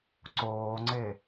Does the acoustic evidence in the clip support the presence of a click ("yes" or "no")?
yes